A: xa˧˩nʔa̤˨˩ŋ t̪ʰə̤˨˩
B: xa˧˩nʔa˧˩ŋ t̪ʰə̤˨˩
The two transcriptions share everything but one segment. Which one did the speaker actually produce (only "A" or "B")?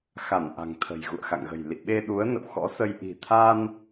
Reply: A